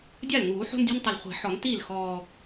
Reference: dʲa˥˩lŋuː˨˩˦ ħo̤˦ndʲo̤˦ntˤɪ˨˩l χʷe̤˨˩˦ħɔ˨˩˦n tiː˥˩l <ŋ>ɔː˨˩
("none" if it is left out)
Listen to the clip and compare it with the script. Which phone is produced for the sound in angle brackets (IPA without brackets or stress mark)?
x